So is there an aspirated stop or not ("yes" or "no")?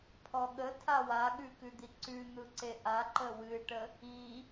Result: yes